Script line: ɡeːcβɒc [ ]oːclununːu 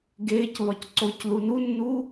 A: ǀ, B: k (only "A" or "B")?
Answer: A